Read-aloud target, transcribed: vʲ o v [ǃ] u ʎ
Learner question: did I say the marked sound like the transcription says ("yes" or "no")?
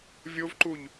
yes